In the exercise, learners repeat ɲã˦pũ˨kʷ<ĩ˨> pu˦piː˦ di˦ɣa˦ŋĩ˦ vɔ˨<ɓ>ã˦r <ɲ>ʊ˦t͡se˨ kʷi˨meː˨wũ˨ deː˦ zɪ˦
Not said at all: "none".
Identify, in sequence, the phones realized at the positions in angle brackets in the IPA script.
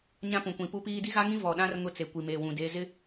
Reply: ĩ˨, ɗ, ŋ

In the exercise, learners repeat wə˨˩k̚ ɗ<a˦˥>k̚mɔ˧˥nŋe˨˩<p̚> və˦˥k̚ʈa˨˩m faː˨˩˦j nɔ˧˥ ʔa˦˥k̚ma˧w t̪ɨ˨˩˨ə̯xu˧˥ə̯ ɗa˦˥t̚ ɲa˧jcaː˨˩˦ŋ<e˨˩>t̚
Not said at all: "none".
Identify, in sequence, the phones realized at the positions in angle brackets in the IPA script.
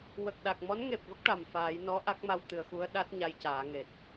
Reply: a˨˩, p̚, e˨˩

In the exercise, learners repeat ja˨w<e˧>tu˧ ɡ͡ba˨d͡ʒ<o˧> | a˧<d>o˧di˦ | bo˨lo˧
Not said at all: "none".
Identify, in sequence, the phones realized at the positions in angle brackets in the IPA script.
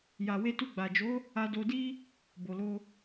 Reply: e˧, o˨˦, d

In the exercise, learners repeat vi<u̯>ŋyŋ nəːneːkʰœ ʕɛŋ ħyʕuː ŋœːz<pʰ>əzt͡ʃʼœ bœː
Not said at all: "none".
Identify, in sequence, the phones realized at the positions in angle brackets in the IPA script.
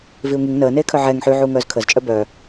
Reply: u̯, kʰ

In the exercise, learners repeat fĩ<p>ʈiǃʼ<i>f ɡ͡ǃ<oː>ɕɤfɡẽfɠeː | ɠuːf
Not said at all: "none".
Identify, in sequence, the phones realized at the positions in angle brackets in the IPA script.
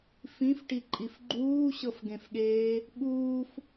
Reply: f, i, uː

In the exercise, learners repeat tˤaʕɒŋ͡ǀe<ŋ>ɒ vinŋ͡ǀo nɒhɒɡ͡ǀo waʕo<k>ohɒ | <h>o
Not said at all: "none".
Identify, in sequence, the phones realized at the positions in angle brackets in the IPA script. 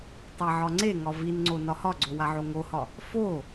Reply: ŋ, ŋ, f

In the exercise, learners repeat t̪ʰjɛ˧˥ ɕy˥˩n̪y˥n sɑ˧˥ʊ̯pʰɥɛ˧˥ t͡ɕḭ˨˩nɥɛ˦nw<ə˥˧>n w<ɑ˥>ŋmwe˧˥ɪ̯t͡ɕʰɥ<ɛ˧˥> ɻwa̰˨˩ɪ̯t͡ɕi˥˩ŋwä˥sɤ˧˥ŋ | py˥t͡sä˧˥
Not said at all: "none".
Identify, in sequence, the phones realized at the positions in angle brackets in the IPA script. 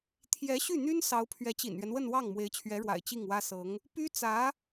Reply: ə˥˧, ɑ˥˩, ɛ˧˥

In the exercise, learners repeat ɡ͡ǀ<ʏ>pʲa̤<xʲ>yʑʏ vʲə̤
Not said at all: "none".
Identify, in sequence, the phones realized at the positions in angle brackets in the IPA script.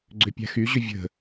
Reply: ʏ, x

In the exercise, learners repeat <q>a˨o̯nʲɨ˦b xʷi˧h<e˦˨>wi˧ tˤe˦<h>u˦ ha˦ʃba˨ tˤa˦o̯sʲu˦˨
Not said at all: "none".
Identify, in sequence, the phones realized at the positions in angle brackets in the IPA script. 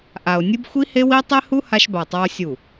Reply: ʔ, e˧, h

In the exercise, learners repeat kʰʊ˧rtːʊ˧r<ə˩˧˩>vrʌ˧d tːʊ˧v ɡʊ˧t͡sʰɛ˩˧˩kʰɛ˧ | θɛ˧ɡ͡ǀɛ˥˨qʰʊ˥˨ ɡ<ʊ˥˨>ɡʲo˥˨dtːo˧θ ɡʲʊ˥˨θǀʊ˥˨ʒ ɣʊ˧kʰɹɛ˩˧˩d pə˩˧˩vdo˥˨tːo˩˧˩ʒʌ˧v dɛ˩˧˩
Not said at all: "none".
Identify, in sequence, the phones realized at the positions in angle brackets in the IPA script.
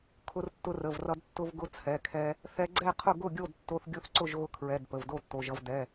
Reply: ə˩˧˩, ʊ˥˨

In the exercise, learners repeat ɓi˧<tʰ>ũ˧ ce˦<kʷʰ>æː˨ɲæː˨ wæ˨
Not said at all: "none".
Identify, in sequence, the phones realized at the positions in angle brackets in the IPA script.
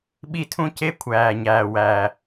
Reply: tʰ, kʷʰ

